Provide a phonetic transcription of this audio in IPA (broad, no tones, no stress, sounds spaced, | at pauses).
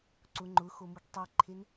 ǀ ʊ ŋ͡ǃ ʊ x o m u ɡ tˤ i ǃʰ e n